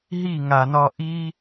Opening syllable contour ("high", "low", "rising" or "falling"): falling